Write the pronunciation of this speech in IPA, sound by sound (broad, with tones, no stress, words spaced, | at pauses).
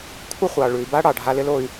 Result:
kʷʰɪ˦χʷɑ˨ɭʉ˨i̯ba˦ ɽɑ˨ɖʱa˧lɪ˦l o˧y̯